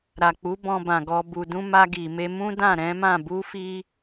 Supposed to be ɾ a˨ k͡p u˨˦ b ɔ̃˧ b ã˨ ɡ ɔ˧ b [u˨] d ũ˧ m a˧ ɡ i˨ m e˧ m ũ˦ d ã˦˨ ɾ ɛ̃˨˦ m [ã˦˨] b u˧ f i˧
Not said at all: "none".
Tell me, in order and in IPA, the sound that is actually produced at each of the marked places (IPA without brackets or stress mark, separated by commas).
u˨, ã˦˨